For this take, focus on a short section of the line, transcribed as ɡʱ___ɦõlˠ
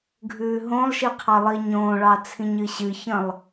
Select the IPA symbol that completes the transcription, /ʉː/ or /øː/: ʉː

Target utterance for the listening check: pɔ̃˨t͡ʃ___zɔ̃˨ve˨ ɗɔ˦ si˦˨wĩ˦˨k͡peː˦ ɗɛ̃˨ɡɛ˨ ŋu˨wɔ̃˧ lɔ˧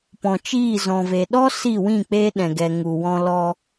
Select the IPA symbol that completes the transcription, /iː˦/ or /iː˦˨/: iː˦˨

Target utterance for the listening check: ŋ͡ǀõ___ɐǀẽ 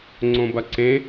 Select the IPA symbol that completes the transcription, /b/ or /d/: b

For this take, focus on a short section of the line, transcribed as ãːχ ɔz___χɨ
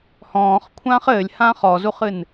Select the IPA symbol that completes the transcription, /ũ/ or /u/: u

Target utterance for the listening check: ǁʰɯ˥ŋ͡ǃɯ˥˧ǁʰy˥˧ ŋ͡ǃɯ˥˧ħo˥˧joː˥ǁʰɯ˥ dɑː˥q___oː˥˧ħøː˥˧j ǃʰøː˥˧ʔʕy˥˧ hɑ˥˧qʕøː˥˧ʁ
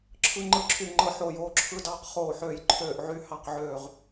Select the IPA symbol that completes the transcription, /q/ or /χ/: χ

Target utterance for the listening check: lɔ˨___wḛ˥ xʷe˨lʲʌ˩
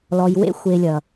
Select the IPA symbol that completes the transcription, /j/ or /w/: j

